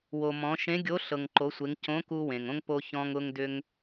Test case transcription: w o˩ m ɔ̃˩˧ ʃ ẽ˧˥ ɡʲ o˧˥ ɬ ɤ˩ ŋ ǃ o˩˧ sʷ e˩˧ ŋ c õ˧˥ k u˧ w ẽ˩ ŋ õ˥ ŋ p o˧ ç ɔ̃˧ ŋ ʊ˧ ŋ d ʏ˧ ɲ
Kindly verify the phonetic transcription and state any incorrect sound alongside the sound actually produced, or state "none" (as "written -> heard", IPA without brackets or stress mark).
ɲ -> ŋ